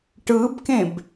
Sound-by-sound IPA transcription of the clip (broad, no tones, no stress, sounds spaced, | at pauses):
ʈ ɯ b k ẽ b